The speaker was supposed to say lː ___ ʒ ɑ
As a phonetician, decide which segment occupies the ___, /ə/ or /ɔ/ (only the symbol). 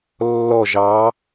ɔ